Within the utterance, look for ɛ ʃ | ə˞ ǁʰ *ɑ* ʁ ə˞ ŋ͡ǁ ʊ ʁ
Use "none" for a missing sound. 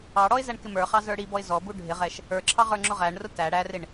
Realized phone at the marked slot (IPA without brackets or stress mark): ɑ